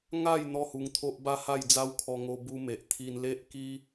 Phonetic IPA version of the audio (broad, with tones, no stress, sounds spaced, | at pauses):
ŋ a˥˧ j n̪ ɔ˥˧ h u˧ ŋ t̪ʰ o˦ ʔ b a˦ h a˥˧ j d͡z a˦ w kʰ ɔ˧ ŋ o˦ b u˦ m e˨ ʔ t̪ʰ i˧ n l e˦ ʔ k i˦